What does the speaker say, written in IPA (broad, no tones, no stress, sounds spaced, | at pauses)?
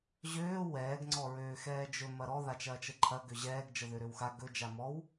ʑ øː w ɛː ɡ ŋ͡ǀ ɔ ɹ øː x ɛː d͡ʒ ɵ m ɐ ɾ ɔ ð a t͡ʃ ɐː t͡ʃ ə ǃʰ ɐ ɡ ø ʑ ɛː ɡ d͡ʒ ə ð ø ɾ ø w x a ɡ ɵ d͡ʒ a m ɔ w